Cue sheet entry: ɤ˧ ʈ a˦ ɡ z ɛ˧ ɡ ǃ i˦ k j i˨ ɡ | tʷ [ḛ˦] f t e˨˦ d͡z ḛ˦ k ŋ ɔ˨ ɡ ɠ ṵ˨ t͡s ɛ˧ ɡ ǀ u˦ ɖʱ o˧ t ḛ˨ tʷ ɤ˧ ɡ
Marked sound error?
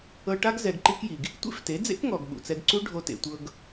no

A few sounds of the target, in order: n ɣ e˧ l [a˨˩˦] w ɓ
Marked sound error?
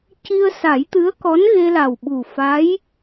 yes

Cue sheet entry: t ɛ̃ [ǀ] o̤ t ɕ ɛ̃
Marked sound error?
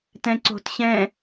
no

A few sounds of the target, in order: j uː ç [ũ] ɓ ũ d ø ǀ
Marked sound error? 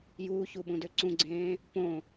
yes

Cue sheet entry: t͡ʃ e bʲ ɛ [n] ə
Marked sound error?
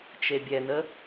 no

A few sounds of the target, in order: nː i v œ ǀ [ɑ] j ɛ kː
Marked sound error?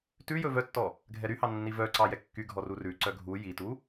no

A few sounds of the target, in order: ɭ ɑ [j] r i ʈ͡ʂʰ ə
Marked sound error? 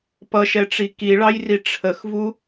no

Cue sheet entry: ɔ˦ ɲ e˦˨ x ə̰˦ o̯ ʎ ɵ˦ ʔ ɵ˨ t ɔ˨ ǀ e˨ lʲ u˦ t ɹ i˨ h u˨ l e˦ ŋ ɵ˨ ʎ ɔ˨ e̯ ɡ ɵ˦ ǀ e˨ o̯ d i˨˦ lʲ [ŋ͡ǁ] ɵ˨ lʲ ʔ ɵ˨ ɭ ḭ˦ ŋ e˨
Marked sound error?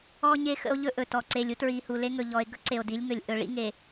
yes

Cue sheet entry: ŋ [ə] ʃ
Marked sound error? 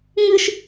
yes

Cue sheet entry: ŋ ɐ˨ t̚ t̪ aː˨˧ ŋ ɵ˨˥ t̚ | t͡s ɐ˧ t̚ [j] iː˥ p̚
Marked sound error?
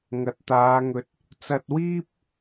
yes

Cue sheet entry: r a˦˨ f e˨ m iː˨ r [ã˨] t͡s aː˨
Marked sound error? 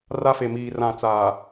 no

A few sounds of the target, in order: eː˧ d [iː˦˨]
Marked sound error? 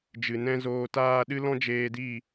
no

